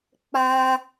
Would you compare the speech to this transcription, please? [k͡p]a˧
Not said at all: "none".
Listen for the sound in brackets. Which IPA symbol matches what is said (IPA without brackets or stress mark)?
k͡p